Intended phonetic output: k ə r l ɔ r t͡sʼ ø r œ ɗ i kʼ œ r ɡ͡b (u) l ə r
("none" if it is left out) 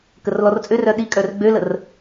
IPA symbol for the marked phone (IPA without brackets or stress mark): ø